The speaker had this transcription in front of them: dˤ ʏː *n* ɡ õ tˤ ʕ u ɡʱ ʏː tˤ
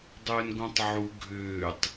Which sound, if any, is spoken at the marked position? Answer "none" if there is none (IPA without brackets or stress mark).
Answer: n